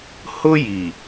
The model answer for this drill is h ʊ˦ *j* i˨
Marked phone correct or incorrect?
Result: correct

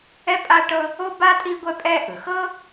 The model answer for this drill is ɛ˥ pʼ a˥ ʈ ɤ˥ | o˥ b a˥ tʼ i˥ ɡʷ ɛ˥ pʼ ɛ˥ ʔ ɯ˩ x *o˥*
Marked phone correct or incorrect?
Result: incorrect: ɤ˥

